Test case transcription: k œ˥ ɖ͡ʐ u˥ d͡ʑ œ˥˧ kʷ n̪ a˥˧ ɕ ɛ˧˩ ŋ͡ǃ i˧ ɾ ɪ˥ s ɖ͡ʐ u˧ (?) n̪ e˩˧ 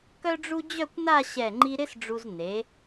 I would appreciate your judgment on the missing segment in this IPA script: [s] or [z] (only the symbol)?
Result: z